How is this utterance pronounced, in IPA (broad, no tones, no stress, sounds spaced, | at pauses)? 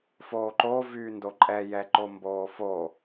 f oː ǃ oː v yː n d o ǃʼ ɛ j ɛ ǃ o m b oː f o